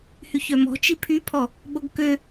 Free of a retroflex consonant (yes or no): yes